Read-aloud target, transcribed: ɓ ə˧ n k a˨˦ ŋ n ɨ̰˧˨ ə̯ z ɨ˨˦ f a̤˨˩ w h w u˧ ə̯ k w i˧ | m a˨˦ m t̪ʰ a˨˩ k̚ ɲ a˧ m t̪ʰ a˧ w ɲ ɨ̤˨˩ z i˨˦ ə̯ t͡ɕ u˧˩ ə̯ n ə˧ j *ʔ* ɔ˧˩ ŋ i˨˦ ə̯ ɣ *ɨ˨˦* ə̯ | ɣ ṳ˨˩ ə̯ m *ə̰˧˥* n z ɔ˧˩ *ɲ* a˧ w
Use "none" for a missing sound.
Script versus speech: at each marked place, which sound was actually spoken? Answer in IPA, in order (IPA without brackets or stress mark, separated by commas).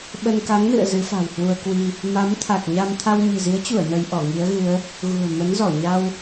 ʔ, ɨ˨˦, ə˨˦, ɲ